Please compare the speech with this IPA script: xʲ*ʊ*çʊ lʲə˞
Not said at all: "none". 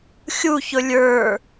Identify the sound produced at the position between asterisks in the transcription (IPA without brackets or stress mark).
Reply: u